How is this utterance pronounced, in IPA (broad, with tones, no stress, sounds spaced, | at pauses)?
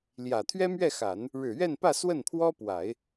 l j ä˨˩ t̪ʰ ɥ ɛ˥ m ɥ ɛ˥˩ x a˨˩˦ n | ɻ ɻ̩˨˩ ɥ ɛ˥˧ n p ä˥˧ s w ə˥˩ n pʰ w ɔ˥ p w a˨˩˦ ɪ̯